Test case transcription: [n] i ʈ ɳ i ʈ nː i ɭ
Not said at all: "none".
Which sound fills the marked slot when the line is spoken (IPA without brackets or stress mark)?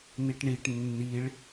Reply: n